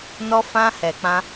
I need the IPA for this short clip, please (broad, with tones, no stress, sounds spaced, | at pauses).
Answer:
n ɔ˧ f ã˧ h ɛ˨ k͡p ã˧